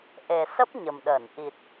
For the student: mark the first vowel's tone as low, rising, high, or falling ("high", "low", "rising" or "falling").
low